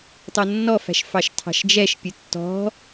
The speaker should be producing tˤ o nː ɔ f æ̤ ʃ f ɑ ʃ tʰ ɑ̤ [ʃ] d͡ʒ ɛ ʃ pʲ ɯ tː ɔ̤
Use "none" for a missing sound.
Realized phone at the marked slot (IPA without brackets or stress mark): ʃ